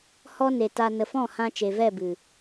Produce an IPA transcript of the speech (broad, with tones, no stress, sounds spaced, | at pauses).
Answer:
h ɔ˦ n e˨ t a˧ n ə˨ f ɔ̃˦˨ h ã˧ t͡ʃ e˨ v ɛ˦˨ b ɨ˨